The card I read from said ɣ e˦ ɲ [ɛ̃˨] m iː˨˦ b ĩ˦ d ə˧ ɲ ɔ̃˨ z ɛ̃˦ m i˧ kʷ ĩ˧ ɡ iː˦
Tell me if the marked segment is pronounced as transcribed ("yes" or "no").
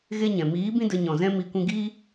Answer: yes